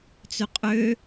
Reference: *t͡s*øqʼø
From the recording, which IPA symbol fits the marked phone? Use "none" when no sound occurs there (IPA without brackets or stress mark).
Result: t͡s